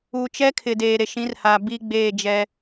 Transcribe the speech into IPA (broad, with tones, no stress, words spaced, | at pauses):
u˨t͡ʃɛ˦kʰɪ˨ deː˨ɾe˨ʃĩ˨˦rhaː˨ bi˦ɡ͡beː˦˨d͡ʒɛ˦